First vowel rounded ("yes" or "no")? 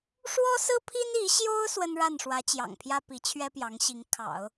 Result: yes